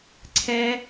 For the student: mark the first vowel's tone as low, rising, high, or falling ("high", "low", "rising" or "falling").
high